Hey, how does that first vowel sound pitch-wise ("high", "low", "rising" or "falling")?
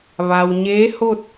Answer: low